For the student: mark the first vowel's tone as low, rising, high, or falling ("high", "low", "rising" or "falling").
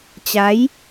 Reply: rising